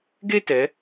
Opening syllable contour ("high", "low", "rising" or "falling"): high